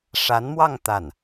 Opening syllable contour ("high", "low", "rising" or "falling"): rising